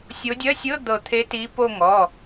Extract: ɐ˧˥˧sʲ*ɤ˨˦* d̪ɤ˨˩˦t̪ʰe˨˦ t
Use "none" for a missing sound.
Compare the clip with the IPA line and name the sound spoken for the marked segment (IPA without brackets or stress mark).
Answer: ɤ˧˥˧